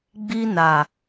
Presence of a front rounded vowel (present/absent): absent